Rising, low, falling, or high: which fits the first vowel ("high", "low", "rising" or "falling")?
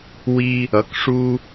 high